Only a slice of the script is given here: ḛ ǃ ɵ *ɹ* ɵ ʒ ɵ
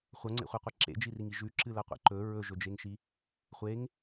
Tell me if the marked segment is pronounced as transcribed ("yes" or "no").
yes